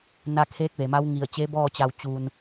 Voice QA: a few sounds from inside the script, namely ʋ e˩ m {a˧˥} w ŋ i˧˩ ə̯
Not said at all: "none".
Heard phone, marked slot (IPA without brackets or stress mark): a˧˥